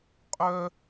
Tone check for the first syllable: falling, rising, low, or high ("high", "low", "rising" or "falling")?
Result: high